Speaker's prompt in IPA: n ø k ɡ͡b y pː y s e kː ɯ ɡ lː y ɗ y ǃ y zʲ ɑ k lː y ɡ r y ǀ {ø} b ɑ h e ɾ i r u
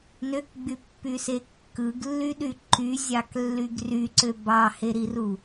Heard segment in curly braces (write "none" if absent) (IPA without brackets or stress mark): ø